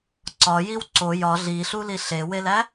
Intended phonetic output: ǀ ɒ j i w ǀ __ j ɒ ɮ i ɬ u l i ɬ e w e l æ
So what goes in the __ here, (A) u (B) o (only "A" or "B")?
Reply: B